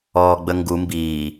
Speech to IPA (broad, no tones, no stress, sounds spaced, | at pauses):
ɔː ɡ͡b ə ŋ ɡ u m b iː